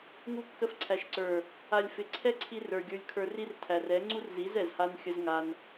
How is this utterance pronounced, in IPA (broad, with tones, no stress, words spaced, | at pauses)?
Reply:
ŋu˧kːə˧fǀʰæ˨ʃǀə˞˨ | a˨lʲfɪ˨ǀʰɛ˦ǀʰi˧ rə˞˨ ɡʲə˞˧lʲkʰə˞˧ri˦rtʰæ˨r ɛ˨˦ ŋ͡ǀu˦rzi˨˦zɛ˨z ha˦nxʲə˦z ŋa˧n